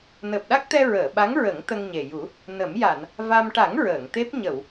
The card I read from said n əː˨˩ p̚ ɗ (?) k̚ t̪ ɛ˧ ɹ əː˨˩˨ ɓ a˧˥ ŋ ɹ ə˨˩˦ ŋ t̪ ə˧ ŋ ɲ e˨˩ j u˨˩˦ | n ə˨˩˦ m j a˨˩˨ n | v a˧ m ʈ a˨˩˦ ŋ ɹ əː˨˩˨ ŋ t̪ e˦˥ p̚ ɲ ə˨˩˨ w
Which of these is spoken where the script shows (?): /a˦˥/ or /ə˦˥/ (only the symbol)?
a˦˥